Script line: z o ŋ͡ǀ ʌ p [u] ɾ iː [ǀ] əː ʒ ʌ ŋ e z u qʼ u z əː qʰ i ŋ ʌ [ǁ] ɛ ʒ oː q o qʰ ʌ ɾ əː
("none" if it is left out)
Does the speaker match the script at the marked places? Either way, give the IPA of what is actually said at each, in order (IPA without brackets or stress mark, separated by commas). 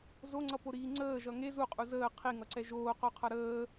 o, ŋ͡ǀ, ǀ